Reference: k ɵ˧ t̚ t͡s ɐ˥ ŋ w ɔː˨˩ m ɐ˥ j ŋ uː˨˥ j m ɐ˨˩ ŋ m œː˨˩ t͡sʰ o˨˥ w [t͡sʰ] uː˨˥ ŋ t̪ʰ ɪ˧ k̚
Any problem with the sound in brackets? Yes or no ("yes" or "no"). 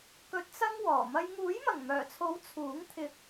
no